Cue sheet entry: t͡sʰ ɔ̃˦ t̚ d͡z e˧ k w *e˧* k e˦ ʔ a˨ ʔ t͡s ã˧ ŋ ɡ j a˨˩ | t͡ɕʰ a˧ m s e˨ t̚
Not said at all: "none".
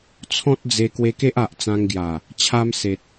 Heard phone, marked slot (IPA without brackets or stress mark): e˧